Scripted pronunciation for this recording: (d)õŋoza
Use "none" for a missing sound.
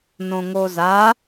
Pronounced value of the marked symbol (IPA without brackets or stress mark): n